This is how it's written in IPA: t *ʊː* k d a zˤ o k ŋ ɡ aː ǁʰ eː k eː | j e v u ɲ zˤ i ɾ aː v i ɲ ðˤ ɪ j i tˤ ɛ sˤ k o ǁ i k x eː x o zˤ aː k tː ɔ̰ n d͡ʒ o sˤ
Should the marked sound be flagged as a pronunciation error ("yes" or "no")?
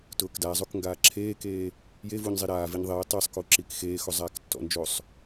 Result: no